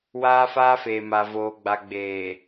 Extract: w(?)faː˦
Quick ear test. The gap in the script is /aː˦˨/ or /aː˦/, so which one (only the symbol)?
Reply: aː˦